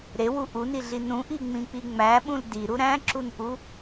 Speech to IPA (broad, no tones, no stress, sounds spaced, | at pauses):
ɾ e w u ʔ u n i ɮ i n ũ ʔ i ŋ͡m ĩ k͡p i ŋ͡m æ ɓ ũ l d i ɾ u ɾ æ̃ ǁ u n ʔ u